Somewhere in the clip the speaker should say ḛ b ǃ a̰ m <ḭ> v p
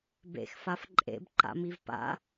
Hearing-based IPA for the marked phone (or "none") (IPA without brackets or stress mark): i